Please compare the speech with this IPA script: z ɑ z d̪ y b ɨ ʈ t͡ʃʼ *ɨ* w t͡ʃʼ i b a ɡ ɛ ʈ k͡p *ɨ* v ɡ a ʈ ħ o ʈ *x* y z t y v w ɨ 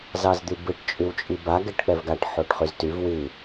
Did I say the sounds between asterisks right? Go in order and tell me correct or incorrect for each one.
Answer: incorrect: y, incorrect: ɛ, incorrect: χ

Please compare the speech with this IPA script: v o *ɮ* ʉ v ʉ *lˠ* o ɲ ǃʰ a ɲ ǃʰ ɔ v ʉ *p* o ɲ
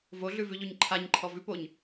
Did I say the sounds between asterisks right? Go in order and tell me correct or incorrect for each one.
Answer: correct, incorrect: ʎ, correct

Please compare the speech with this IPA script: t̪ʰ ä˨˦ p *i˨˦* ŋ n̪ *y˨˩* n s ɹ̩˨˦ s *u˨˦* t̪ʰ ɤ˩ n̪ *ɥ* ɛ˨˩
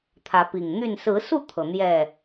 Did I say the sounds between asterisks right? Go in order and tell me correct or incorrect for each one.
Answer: incorrect: i˨˩, incorrect: y˥˨, incorrect: u˥˨, incorrect: j

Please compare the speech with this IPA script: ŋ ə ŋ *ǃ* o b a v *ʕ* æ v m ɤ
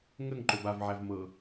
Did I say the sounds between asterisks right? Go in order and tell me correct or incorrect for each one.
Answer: correct, correct

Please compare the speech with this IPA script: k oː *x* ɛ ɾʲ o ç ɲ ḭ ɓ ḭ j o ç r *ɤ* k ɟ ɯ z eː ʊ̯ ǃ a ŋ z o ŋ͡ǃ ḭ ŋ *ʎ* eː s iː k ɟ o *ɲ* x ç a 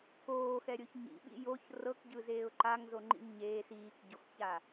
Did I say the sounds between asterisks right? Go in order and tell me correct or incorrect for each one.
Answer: correct, correct, incorrect: ɲ, incorrect: none

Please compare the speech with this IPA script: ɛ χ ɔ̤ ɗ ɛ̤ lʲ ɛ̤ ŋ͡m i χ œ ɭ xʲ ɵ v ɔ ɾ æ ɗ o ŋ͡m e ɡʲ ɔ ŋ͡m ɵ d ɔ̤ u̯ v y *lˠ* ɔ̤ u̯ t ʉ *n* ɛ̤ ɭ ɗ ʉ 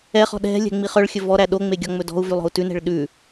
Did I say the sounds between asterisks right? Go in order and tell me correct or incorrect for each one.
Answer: correct, correct

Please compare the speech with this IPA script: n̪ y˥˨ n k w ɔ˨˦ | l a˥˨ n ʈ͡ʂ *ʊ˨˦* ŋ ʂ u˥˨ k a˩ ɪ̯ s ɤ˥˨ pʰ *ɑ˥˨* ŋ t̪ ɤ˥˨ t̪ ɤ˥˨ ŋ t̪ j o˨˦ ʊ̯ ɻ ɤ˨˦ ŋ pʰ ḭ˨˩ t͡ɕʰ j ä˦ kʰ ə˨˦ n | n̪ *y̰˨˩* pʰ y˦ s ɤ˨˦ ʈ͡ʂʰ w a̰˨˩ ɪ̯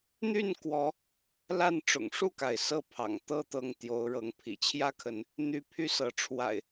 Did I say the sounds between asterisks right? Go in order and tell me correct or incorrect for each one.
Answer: incorrect: ʊ̰˨˩, incorrect: ɑ̰˨˩, incorrect: y˦

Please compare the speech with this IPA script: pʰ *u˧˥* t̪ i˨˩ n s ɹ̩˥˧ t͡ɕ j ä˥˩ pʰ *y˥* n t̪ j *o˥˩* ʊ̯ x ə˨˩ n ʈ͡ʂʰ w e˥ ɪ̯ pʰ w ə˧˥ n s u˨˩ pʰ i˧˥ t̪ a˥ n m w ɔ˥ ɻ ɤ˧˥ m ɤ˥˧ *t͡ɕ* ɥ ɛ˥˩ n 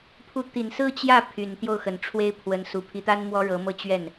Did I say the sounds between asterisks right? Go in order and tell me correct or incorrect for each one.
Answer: correct, incorrect: y˨˩, correct, correct

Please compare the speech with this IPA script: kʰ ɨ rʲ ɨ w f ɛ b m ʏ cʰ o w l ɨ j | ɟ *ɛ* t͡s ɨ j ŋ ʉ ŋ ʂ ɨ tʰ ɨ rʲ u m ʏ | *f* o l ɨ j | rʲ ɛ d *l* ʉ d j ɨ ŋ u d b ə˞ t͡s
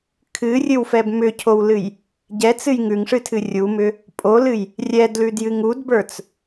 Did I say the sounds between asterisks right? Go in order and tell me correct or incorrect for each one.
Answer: correct, incorrect: pʼ, correct

